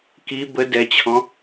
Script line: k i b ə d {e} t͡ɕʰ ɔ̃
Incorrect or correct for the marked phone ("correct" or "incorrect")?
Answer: incorrect